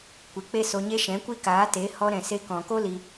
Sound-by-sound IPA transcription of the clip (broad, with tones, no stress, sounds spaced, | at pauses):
kʷ e˨ k͡p e˦ s o˧ ɲ e˦ ʃ ɛ̃˨˦ kʷ i˦ k aː˨˦ t e˨˦ h ɔ˧ ɾ ɛ̃˨ s e˧ k ɔ̃˨ k o˦ l i˧